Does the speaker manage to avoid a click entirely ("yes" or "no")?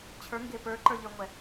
no